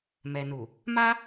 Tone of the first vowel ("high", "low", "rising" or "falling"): low